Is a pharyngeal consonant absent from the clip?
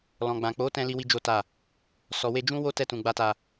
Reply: yes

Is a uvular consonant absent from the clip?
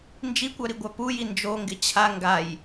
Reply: yes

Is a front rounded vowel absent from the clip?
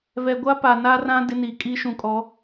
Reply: yes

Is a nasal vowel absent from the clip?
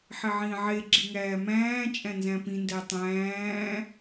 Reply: no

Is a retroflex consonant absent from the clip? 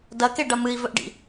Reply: no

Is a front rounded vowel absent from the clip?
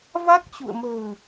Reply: yes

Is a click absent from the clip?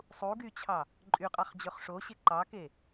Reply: no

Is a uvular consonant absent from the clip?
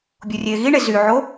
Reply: yes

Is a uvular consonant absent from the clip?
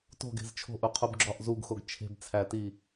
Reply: no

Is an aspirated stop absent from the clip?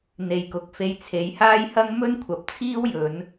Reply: no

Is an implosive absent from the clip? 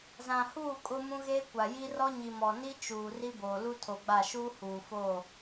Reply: yes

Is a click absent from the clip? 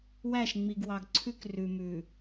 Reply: no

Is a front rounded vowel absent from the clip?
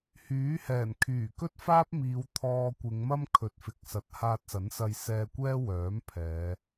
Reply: no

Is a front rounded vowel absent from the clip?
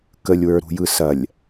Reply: yes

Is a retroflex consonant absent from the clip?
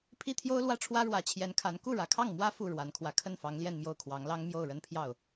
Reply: no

